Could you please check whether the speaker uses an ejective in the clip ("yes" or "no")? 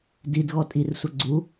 yes